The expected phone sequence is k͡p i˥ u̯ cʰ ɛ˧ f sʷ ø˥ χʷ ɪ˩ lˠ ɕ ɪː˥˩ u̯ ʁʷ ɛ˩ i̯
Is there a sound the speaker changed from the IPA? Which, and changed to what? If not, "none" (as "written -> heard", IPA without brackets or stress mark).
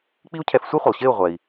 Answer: ø˥ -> e˥